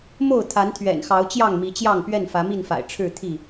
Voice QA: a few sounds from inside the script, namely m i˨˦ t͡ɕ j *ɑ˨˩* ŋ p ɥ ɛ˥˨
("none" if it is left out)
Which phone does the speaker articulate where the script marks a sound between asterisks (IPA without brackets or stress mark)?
ɑ˥˨